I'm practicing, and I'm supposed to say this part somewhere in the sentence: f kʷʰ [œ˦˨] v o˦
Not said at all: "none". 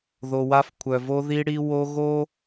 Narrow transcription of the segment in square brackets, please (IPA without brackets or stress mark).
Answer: œ˨